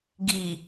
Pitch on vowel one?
low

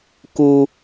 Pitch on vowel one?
high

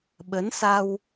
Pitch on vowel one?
rising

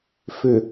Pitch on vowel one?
low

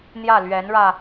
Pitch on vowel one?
falling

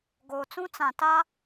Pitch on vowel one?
low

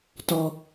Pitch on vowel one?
low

